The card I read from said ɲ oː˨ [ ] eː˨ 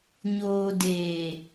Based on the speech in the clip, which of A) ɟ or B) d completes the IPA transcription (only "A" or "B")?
B